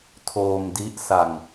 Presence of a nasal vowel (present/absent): absent